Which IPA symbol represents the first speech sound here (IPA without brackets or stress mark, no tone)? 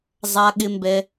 zˤ